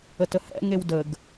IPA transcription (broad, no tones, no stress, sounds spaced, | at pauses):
ə t ə h ɛ̰ ŋ e w d ə ɡ